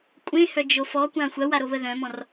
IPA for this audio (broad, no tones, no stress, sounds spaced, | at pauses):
kʷʼ ẽ h œ d͡ʒ o f ɔ kʷ ã xʷ ɐ w a ɾ o β ə ð œ̃ m ɔ̃ r